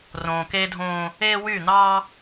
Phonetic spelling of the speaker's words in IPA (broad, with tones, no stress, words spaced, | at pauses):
rõː˨keː˦dʱõː˦ | eː˦ wyː˦˨n̪ɑː˦